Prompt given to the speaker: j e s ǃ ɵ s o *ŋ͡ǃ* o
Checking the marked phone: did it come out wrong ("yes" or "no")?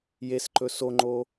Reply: no